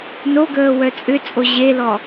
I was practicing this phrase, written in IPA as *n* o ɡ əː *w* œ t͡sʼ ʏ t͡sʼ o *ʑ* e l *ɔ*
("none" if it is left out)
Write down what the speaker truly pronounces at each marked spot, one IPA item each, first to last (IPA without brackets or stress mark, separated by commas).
n, w, ʑ, ɔ